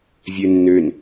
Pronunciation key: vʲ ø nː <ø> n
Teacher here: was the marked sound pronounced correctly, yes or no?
yes